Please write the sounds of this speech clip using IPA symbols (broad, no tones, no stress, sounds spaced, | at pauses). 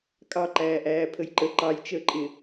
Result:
kʼ ɑ ǃ æː ʔ æː pʰ ə j ǃ ə ǃ ɑ j t͡ʃ əː ǃʼ ɪ